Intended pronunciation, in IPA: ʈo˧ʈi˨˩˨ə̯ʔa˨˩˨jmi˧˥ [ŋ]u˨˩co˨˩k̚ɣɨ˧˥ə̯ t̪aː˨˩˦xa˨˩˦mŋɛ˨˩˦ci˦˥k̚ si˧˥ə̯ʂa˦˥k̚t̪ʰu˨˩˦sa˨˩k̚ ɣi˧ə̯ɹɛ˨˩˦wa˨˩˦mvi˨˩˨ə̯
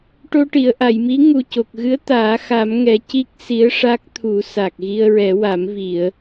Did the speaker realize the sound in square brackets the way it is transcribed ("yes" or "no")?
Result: yes